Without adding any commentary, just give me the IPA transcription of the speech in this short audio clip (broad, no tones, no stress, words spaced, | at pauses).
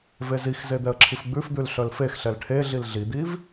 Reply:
vezixze d̪ɛə̯ǁʰifɡ͡bʉfd̪ʉl ɬœlfexɬɛl ʈʰeɮil ɮid̪iv